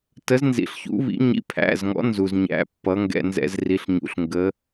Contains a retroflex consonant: no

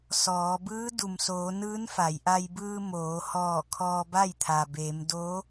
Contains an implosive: no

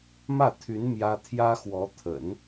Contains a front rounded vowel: yes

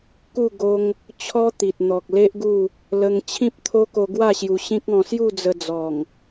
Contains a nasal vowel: yes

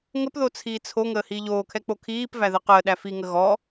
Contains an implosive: yes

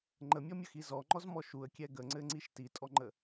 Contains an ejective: yes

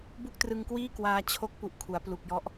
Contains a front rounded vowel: no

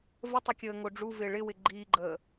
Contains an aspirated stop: no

